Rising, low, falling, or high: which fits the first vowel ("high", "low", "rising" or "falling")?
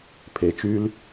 low